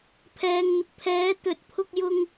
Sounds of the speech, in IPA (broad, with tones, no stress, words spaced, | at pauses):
pʰɛː˨ŋn̪ɪ˨k̚pʰɛː˨˥ t̪ɵ˨t̚pʰʊ˧k̚jʊ˧ŋ